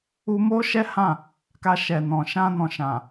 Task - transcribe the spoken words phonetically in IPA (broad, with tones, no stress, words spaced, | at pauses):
u˧ mo˦ʃɛ˦hã˦˨ | ka˧ʃɛ˨nɔ̃˨ ʃã˧nɔ̃˨ʃã˨